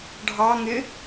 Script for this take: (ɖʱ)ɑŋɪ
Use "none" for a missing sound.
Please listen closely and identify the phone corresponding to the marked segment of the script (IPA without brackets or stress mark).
ɖʱ